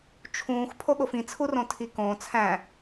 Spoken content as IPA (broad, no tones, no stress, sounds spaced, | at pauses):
t͡ʃʰ ũː x pʰ o ɠ o f ĩ t͡sʰ u r õ tʰ i k õː t͡sʰ æ̃